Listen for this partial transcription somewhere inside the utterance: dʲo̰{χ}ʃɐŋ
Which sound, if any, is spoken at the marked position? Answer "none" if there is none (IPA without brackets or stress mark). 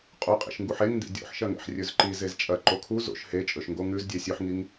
ħ